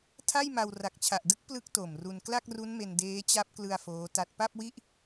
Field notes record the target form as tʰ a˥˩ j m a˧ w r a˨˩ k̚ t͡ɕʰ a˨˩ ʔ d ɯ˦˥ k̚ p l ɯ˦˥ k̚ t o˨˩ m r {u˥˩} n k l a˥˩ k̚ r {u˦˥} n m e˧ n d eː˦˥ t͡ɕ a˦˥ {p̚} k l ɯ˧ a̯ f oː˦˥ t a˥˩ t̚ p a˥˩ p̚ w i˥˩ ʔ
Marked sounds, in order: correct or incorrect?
incorrect, correct, correct

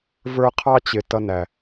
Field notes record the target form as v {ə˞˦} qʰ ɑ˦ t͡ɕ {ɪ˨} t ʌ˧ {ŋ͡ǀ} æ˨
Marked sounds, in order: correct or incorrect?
correct, correct, incorrect

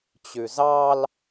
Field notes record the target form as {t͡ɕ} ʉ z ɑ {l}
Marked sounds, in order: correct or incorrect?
correct, correct

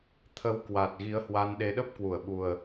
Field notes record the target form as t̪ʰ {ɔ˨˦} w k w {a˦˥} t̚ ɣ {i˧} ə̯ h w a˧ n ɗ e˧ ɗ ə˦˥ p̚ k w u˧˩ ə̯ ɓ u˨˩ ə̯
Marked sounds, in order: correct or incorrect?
incorrect, incorrect, incorrect

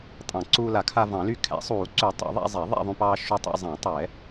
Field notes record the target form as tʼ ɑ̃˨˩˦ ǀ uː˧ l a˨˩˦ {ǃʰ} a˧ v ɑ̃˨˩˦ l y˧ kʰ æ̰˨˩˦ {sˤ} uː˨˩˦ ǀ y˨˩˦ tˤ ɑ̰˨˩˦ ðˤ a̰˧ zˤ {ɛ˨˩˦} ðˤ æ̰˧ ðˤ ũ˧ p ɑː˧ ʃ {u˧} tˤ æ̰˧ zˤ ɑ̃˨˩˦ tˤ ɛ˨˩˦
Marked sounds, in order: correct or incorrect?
incorrect, correct, correct, correct

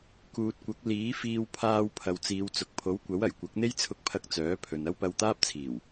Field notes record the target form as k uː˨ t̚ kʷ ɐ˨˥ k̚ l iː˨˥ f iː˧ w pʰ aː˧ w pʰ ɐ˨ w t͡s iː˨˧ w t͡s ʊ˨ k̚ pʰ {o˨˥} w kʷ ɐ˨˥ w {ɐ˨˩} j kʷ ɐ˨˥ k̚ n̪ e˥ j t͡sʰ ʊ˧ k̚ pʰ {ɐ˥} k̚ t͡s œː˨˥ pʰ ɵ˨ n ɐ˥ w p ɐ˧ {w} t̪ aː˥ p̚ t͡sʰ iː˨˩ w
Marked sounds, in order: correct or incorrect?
correct, correct, incorrect, correct

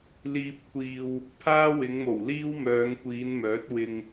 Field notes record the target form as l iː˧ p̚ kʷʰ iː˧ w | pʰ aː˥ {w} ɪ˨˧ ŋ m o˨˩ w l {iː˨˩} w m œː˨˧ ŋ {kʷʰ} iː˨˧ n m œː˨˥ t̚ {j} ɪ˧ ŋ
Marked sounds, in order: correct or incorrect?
correct, incorrect, incorrect, incorrect

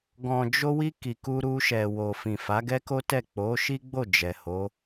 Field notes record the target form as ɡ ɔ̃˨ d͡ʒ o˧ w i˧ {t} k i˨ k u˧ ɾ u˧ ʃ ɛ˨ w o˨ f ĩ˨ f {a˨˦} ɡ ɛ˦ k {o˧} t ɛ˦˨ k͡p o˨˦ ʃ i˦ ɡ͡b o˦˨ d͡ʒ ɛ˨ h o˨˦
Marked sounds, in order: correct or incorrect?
incorrect, correct, incorrect

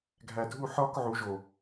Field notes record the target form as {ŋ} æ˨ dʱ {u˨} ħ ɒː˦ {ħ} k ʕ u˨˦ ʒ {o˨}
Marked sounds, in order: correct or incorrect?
incorrect, incorrect, incorrect, correct

